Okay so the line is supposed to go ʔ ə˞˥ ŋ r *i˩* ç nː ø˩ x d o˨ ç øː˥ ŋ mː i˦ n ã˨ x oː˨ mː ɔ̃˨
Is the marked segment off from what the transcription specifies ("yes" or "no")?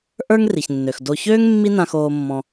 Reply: no